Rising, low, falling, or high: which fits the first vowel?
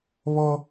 high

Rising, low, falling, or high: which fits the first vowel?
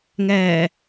low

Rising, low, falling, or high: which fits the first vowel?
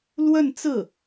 falling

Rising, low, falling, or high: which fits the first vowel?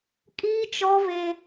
high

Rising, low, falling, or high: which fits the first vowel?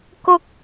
high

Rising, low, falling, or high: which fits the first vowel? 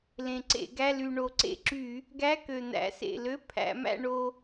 low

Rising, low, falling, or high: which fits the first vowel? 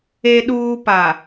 low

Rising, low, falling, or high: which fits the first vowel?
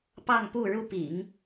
falling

